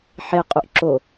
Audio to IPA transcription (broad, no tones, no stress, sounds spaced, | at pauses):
ħ e qʼ u ʔ ǁ o